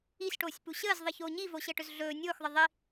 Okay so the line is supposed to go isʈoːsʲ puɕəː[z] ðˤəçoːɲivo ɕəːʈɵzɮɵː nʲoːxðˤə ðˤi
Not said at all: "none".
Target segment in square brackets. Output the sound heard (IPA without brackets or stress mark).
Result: z